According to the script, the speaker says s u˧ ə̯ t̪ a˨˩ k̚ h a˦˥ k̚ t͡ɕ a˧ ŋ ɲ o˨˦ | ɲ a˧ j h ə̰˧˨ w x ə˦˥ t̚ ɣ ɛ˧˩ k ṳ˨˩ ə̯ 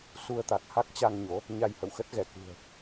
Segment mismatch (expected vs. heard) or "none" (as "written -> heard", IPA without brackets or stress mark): none